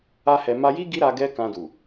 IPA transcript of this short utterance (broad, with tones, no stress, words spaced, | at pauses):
a˦hɛ˧ ma˧ji˦ ɡi˦ɾa˧ ɡɛ˦kã˧du˨